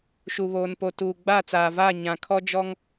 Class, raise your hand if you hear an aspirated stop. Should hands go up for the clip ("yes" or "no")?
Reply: yes